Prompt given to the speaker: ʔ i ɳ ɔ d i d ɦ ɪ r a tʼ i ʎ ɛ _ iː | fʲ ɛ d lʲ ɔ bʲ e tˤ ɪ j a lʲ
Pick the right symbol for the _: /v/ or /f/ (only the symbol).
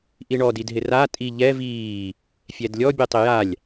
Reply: v